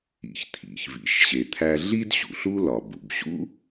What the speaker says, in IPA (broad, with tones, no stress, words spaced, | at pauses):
ḭ˩çt̪ʰḭ˩çvḭ˩ʃɕe˩ t̪ʰæ˧ɮi˥dɕṵ˩ɬ u˥lɒ˩bṵ˩b ɕṵ˥